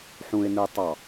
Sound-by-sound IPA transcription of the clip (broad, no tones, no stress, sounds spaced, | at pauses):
ħ ũ ɪ̯ n ɯ tˤ ɑ